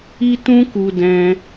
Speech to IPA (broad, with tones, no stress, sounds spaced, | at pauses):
i˦ t ũ˦ k u˧ d ɛ̃˦